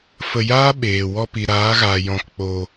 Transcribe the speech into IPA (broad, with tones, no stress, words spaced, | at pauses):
fə˧jaː˦ ɓeː˨wɔ˧ pi˨ɾaː˨˦ɣaː˨ jɔ̃˧k k͡po˧